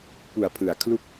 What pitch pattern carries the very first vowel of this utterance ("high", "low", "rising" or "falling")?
low